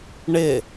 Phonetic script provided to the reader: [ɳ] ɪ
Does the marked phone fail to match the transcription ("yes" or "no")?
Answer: no